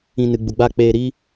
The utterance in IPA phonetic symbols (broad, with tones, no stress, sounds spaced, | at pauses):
ĩ˧ n ɨ˨ ɡ͡b u˨ ɡ͡b a˦˨ k͡p eː˧ ɾ iː˦